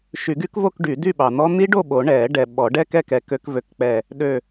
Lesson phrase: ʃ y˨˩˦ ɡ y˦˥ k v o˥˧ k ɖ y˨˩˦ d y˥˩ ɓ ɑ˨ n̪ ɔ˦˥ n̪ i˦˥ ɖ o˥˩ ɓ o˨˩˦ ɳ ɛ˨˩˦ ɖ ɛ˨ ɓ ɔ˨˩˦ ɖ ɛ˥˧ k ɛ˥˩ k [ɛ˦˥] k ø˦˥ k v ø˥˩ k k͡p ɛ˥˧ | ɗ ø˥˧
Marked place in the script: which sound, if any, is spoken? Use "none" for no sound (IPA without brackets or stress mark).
ɛ˨˩˦